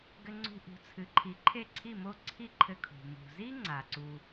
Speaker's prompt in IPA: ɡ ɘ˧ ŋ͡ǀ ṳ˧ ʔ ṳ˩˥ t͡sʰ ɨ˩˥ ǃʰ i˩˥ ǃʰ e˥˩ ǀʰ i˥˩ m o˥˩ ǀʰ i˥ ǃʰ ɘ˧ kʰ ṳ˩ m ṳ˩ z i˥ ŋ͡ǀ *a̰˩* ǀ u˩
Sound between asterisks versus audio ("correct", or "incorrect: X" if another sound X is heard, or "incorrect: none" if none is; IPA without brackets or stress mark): incorrect: a˩